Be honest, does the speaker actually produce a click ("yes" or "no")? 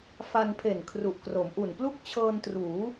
no